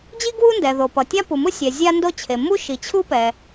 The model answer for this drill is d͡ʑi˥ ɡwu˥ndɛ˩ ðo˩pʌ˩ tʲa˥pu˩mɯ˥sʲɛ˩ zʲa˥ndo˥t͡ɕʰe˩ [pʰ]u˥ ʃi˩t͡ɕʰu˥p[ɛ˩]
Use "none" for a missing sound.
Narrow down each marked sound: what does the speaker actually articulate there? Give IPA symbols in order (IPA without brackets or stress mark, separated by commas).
m, ɛ˩